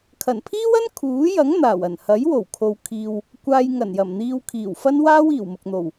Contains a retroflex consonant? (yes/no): no